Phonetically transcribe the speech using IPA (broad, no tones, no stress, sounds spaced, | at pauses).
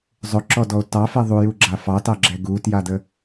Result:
zˤ ɵ ǁ ɔ d ɔ o̯ t ɑ f ɛ ðˤ u j u ɡ͡ǁ a f ɑ t ɑ ɡ͡ǁ ɛ ɡ u t j a d ə